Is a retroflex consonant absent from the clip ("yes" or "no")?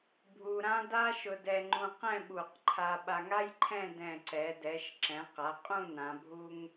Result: yes